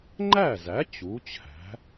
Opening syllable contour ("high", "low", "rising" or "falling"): falling